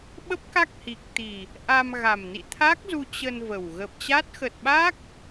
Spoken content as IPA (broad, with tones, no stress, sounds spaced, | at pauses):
ɓ ə˦˥ p̚ k a˦˥ k̚ h i˨˩ k̚ t̪ i˨˩ | ʔ a˧ m ɣ a˨˩ m n ḭ˧˨ t̪ʰ a˦˥ k̚ z u˧ t͡ɕ ə˧ n v ə˨˩ w ɣ ə˨˩ p̚ t͡ɕ a˦˥ t̚ x ə˨˩ t̚ ɓ a˦˥ k̚